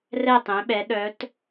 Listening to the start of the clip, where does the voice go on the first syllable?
falling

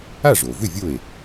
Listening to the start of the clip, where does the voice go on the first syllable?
falling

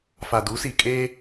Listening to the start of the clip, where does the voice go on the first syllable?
low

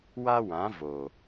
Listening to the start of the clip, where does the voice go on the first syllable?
high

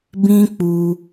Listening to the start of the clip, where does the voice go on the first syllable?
high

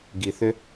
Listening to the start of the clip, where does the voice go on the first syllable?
low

